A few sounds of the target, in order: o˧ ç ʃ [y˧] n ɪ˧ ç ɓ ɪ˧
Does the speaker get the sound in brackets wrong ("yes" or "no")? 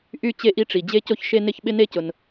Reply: yes